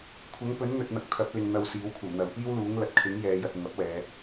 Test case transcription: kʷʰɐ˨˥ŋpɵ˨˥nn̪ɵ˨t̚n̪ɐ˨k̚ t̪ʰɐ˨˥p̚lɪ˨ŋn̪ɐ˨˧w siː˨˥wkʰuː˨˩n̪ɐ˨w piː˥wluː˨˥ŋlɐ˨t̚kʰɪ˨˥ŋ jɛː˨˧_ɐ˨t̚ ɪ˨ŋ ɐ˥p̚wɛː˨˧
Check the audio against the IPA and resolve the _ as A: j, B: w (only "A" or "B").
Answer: A